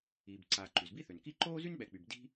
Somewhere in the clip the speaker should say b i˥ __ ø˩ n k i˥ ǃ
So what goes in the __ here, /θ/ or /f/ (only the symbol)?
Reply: θ